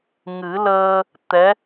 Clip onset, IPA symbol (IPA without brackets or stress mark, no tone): ŋ